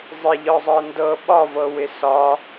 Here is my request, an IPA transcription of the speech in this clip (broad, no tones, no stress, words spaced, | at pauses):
zˤɪʎɒzˤɤ ndɤ ɓɒvɤwɪ sɒ